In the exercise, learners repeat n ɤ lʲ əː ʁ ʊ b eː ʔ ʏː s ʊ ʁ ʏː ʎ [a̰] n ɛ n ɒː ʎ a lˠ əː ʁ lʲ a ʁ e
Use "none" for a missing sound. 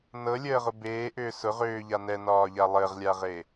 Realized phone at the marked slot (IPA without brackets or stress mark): a